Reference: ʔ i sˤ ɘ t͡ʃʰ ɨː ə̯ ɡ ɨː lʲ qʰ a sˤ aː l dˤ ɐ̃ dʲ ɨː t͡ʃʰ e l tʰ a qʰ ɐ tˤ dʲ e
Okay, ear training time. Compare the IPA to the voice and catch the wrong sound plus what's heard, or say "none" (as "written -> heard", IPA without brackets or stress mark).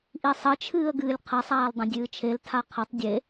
none